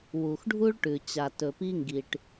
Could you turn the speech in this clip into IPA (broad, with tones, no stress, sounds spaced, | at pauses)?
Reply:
w u˨ x ɖʱ u˦ ɭ ʈ ʉ˨ t͡ɕ a˨ t ɵ˨ p i˦ ŋ ɡ i˨ ʈ